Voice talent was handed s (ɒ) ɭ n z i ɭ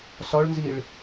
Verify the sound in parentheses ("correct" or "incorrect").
correct